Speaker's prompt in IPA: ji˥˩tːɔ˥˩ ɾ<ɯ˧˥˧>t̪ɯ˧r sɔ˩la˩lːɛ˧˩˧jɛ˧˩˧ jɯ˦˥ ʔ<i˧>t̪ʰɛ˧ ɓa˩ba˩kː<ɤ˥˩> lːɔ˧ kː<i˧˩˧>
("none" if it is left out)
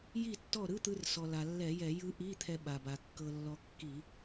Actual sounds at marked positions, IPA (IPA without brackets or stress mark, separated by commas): ɯ˧˥˧, i˧˥˧, ɤ˧, i˧˩˧